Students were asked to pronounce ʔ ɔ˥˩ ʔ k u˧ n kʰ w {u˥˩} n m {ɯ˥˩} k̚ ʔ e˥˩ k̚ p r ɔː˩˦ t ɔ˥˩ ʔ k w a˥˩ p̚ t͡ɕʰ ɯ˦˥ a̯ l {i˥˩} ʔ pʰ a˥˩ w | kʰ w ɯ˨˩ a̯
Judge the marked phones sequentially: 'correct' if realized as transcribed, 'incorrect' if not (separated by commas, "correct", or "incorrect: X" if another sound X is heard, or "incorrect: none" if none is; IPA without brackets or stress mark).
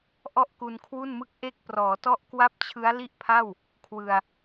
correct, correct, correct